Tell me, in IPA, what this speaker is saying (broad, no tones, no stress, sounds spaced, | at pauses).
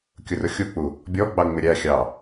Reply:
kʲ ʊ r ʊ xʲ u k͡p u | bʲ ɔ ɡ͡b ɑ ŋ͡m ɪ ɾʲ æ xʲ ɑ